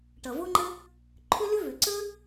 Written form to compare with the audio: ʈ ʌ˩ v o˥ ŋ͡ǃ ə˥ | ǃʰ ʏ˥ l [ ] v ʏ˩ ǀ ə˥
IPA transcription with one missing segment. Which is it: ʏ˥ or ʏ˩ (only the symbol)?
ʏ˥